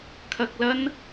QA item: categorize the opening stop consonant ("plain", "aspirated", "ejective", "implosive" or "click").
aspirated